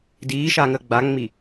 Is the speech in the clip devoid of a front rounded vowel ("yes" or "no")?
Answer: yes